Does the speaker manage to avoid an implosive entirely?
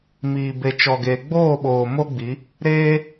no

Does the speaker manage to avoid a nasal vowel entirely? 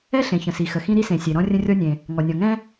no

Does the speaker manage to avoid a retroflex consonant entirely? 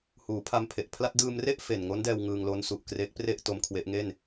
yes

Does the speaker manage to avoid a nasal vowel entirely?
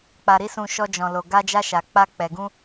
no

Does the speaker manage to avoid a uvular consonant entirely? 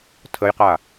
no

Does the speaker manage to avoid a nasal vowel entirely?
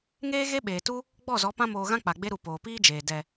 no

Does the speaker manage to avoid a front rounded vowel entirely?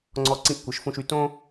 no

